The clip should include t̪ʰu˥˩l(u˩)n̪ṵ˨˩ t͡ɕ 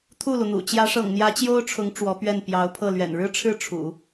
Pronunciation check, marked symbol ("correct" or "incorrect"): correct